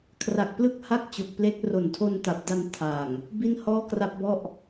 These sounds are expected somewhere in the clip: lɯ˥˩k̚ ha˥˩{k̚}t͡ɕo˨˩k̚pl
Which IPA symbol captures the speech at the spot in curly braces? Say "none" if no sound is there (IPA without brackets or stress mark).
k̚